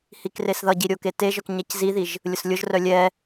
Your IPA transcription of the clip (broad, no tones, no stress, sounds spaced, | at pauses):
h i k r e s ð ʌ ɟ i ɾʲ o k e t e ʒ œ k ɲ ɛ c z i ð i ʒ | lʲ ʊ s lʲ ʊ ʒ r œ lʲ ɛ